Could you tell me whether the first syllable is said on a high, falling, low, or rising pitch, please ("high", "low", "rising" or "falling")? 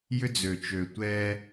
high